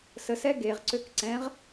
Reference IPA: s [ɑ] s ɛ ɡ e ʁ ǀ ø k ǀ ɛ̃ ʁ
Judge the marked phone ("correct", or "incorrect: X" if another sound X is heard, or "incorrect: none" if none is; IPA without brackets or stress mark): incorrect: ə